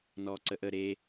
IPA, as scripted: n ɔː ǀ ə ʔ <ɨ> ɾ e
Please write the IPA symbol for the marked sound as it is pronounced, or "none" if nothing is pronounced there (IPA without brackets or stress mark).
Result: ə